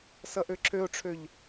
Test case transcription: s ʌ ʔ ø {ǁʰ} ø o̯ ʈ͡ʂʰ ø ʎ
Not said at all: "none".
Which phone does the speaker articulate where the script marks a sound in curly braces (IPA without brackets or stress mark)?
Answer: ǁʰ